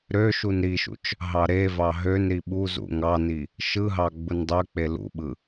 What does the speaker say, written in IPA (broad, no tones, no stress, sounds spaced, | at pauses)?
ɾ ø ʃ u n ɾ i ʃ ṵ t͡ʃ | ɦ ɑ ɾ e v ɑ ɦ ø n ɾ i ɓ u z ṵ ŋ ɑ n i | ʃ ɯ ɦ ɑ ɡ͡b u n dˤ ø k͡p e l ṵ ɓ ɯ